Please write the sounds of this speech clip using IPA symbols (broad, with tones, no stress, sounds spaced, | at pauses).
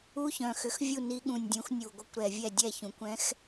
u˧˥˧ ç œ̃˨˩ x ʏ˩˥ x vʲ u˥˩ n i˧˥ ɠ ũ˨˩ nʲ dʲ ũ˩˥ x nʲ u˨˩ ɡʷ ə˧˥ kʷ ɾ ɛ˨˩ vʲ ɛ˥˩ dʲ ɛ˥˩ ç ũ˩˥ kʷ ɛ̃˧˥ x